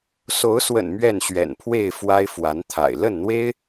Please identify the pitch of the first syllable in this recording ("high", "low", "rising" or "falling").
rising